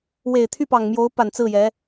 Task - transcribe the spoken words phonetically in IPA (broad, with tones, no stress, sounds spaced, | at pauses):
w e˨˩ ɪ̯ t̪ʰ y˥˩ p ɑ˨˩ ŋ m j o˧˥ ʊ̯ p a˨˩ n t͡s ɹ̩˥˩ j ɛ˧˥